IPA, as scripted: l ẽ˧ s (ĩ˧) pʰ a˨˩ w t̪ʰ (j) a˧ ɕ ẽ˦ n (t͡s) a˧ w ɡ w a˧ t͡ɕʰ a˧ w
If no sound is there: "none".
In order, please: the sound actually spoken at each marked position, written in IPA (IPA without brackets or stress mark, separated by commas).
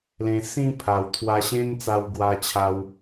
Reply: ĩ˧, w, t͡s